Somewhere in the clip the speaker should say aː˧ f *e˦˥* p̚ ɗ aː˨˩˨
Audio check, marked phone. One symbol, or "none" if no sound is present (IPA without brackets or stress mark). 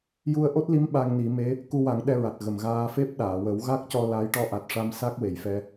e˦˥